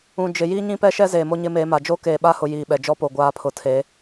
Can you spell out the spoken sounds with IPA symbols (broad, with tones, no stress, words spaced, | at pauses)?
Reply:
ũ˨d͡ʒɪ˨ jiː˦ɲĩ˦pɛ˦ ʃɛ˦zeː˨ mo˦ɲɪ˦meː˨˦ma˨ d͡ʒo˦keː˨ɓa˦hʊ˨ jiː˨ɓɛ˨ d͡ʒɔ˦po˨ɡʷaː˨˦ pʰʊ˨tʰe˨˦